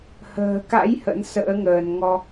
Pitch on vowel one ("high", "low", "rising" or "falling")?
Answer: low